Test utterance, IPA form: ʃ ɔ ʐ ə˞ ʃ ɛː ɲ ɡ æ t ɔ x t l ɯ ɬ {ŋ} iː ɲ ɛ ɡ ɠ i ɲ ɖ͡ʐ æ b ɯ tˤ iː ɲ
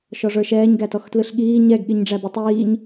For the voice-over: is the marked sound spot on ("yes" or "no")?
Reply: no